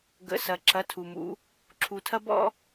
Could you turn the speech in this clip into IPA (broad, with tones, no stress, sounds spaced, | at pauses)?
ɡ ə̰˩˧˩ s ɐ˩ ǁ ɐ˩˧˩ tʰ u˩ m ṵ˩˧ | ǁʰ u˩ tʰ ɐ˥ b ɔ̰˥